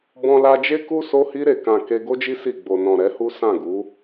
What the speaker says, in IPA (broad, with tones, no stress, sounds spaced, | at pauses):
b ɔ̃˧ l a˧ d͡ʒ e˦ k u˦ s o˧ h i˧ ɾ e˨ k ã˨ k e˧ ɡ o˦ d͡ʒ i˦ s i˦˨ ɡ͡b o˨ n ɔ̃˨ ɾ ɛ˨˦ h u˦ s ã˦˨ ɡ u˨˦